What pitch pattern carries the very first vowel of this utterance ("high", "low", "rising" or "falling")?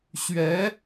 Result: rising